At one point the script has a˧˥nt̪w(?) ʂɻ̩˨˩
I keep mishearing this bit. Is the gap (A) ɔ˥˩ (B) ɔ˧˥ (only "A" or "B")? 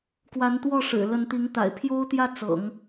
A